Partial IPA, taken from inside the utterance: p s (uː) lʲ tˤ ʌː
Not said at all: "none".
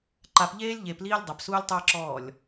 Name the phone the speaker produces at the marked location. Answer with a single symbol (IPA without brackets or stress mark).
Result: uː